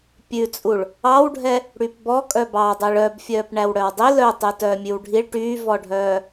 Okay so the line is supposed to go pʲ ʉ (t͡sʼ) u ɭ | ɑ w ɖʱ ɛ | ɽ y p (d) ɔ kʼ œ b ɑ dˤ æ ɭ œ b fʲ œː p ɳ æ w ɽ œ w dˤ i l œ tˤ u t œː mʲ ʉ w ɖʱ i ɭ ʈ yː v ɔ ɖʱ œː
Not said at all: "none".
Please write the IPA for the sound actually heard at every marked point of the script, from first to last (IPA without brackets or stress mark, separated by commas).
t͡sʼ, b